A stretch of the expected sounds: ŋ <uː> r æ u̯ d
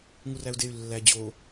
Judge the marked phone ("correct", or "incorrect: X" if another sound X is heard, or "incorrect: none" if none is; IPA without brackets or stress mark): incorrect: u